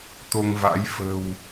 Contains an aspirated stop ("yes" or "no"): no